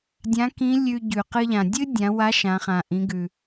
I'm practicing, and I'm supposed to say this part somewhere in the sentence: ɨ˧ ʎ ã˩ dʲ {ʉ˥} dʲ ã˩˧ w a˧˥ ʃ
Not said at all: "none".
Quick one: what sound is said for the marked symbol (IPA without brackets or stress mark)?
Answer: ɨ˥